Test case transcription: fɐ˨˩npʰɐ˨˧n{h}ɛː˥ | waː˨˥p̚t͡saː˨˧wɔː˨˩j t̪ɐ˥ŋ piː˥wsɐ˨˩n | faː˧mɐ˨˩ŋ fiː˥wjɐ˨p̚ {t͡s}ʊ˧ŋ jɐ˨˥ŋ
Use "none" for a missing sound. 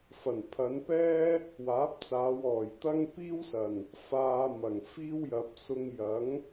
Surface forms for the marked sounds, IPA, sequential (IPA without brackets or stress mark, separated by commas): p, s